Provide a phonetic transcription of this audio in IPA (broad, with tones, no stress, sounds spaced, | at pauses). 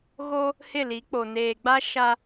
ɣ o˦ | h ɪ˦˨ l i˨˦ k͡p o˨ n eː˨ ɡ͡b a˦ ʃ a˦